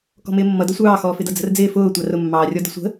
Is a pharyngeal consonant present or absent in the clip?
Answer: absent